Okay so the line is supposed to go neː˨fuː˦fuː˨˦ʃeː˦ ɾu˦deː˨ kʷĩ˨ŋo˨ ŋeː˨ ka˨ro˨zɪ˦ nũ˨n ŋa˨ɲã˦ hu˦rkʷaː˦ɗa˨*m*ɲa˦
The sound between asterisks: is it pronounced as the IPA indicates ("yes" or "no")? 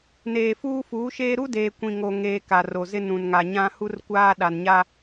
no